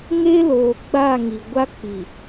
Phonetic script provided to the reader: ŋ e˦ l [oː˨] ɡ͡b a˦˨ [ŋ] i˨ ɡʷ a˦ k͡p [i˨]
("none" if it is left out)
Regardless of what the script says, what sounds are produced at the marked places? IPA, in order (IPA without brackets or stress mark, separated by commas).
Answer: oː˨, ŋ, i˨